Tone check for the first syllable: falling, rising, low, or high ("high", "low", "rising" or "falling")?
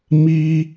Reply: high